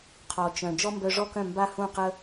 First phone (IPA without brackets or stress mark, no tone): qʰ